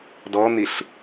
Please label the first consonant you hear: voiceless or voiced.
voiced